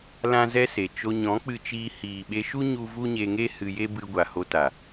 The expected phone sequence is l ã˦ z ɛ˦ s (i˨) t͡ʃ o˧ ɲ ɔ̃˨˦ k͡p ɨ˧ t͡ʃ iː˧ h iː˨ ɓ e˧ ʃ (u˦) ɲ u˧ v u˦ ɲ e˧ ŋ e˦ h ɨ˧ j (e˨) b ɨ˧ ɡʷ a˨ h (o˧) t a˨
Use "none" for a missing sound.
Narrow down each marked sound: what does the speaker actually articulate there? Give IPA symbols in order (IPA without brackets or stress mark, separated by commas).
e˨, u˦, e˦, o˧